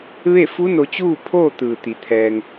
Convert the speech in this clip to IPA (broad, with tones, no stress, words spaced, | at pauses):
ʋe˥˨fu˧˥ no˧ t͡ɕuː˥˨pʰoː˥˨ t̪ɯː˩t̪i˩˧ t̪ʰɛː˧ŋ